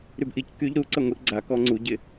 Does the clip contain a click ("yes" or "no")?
yes